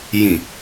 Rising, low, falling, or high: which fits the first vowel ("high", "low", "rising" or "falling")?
low